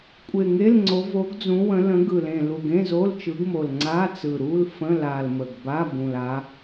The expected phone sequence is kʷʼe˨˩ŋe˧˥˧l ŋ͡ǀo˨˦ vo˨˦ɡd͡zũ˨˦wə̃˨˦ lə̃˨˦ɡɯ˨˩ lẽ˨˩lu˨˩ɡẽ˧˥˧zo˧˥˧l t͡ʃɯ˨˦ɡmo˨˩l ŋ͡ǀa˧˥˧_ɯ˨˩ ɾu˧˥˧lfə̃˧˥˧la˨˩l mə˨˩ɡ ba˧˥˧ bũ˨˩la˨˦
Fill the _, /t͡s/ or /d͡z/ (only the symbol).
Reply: t͡s